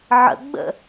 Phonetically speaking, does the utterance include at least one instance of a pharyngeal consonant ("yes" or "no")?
yes